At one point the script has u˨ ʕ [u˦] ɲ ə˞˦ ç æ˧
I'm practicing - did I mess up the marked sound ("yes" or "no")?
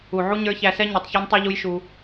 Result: no